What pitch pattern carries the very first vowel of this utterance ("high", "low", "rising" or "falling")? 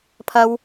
high